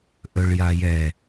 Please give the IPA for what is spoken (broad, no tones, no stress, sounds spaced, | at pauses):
ʔ ɵ ɭ j a j ɛ